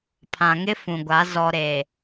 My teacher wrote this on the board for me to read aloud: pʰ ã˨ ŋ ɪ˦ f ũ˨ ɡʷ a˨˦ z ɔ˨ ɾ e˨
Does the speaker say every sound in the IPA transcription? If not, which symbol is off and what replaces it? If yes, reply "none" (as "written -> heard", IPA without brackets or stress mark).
none